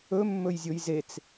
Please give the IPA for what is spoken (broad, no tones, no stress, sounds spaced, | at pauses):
ɵ mː ɵ j zʲ o j z e t͡s